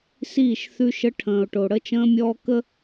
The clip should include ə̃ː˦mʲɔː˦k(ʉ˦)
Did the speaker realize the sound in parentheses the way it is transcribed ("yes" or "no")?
no